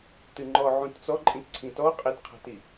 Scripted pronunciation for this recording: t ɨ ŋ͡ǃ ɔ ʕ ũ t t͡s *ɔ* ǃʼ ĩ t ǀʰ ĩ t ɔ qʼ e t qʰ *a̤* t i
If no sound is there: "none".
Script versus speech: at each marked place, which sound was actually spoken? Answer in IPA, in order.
ɔ, a̤

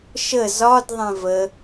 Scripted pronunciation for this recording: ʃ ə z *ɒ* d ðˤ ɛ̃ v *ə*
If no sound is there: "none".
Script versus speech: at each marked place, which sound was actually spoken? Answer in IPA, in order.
ɒ, ə

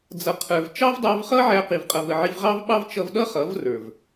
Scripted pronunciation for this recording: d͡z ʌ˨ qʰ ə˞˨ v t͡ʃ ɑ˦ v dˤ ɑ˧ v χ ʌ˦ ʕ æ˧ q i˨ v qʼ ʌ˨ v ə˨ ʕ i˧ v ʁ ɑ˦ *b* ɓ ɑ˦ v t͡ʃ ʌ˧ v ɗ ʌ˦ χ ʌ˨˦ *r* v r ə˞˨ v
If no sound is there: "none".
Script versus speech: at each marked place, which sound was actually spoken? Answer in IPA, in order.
v, none

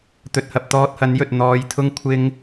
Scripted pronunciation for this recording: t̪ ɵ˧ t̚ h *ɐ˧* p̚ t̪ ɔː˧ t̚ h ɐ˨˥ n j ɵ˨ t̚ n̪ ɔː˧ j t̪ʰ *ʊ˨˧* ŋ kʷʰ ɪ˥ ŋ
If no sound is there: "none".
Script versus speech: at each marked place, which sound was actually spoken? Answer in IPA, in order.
ɐ˧, ʊ˥

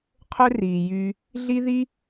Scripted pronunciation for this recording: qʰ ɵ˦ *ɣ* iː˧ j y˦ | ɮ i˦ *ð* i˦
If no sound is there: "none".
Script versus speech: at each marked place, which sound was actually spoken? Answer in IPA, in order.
r, ð

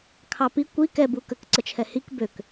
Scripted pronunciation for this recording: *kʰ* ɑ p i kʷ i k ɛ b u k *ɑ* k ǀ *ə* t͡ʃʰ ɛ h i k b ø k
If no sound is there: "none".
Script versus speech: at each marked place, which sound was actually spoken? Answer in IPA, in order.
kʰ, ə, ə

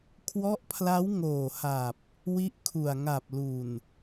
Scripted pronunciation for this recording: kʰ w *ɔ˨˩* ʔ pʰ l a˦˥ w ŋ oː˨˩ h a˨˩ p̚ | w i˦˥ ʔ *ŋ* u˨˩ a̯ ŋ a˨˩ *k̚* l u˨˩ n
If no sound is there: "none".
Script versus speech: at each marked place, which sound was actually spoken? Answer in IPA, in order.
ɔ˦˥, kʰ, p̚

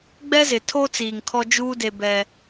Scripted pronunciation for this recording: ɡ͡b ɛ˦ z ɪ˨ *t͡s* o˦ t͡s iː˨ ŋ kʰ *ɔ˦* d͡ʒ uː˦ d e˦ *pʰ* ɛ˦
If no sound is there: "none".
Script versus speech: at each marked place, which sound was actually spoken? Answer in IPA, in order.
tʰ, ɔ˦, b

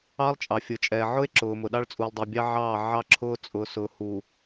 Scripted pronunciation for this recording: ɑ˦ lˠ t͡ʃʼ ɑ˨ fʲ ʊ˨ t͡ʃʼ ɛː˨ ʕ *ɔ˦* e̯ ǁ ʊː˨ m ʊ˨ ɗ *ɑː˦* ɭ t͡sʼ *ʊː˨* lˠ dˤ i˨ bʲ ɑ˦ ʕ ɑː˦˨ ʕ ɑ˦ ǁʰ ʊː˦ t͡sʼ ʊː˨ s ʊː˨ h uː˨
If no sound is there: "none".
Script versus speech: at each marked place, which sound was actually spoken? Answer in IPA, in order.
ʊ˦, ɑ˦, uː˨

